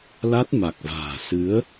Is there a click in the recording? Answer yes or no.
no